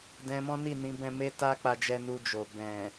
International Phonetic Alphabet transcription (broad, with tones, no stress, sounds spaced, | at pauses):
d ɛ̃˧ m ɔ̃˦ n i˦˨ n ĩ˨˦ b ɛ̃˦ m e˦ t a˦ k͡p a˧ d͡ʒ ɛ˧ n u˧ d͡ʒ o˨ b ɛ̃˨